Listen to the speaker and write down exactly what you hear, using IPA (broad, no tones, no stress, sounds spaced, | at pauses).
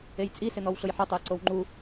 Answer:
e j t͡sʼ i s ɪ n̪ ɔ w ɬ ʊ j ħ ʊ tˤ ʊ ə̯ ǀ o w ŋ͡ǃ u